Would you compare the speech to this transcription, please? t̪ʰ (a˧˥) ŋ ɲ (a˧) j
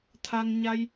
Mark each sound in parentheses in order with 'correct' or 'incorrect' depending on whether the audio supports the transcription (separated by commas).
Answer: incorrect, correct